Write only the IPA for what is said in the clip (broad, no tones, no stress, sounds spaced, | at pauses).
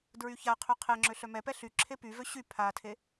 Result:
d ɹ y ç a qʰ ø qʰ ɛ ŋ͡ǁ ø ɬ œ m ɛ p ɛ ɬ y ǁʰ e p y v ø ɕ y pʰ a tʰ e